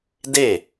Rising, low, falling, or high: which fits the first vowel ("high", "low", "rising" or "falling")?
falling